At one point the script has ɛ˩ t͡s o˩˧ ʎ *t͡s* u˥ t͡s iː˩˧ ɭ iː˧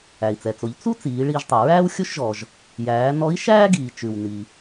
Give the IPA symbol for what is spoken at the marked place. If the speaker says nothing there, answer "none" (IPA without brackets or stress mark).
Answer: t͡s